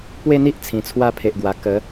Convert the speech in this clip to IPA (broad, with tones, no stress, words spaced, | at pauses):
pwe˥˧n̪i˦ʔ t͡sʰĩ˨˩t͡sʰwa˥˧ pʰe˨ʔɡwa˨˩ kə˨˦